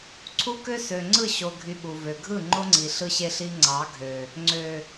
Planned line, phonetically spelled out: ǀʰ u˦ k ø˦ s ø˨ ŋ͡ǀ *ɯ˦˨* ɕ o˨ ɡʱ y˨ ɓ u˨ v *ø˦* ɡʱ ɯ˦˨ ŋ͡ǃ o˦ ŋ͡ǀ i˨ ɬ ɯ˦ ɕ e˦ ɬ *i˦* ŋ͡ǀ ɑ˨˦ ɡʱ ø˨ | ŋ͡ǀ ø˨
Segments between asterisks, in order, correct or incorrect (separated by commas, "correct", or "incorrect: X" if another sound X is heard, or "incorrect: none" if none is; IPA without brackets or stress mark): correct, incorrect: ø˨, correct